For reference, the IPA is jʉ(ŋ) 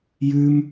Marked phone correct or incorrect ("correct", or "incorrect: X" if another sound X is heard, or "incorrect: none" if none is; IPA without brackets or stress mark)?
incorrect: m